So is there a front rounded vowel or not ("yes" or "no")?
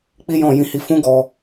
no